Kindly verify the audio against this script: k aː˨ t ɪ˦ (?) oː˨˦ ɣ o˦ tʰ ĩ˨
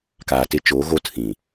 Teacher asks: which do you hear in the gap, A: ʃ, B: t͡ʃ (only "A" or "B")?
B